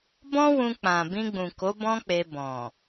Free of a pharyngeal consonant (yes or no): yes